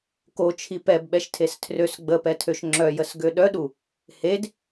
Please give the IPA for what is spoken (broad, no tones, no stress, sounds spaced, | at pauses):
k o t͡ʃʰ i p ɛ b ɓ ɛ ʃ tʰ e s tʰ r ø s ɡ͡b ə p ɛ tʰ ø ʃ ŋ͡ǁ œ j ə s ɡ ø ɗ œ ɗ u | h e d